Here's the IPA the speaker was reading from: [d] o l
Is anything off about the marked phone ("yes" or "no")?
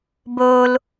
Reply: yes